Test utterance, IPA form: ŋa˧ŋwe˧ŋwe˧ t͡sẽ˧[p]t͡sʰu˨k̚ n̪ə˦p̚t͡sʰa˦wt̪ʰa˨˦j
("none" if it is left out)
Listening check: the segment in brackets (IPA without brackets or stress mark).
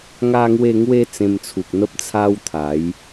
m